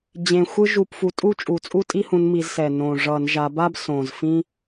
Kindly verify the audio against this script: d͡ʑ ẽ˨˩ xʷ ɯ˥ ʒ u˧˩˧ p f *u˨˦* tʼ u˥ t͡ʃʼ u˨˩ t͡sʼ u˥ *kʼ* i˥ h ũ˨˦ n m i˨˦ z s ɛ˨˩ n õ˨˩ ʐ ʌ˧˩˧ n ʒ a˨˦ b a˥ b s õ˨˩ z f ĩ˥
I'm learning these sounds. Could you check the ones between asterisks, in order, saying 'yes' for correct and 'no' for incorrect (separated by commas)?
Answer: yes, no